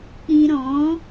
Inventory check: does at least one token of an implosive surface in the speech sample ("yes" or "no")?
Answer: no